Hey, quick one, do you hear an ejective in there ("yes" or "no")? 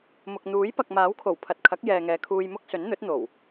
no